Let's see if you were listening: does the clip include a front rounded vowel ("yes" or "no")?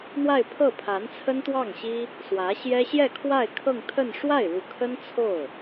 no